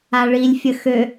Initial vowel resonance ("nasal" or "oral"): oral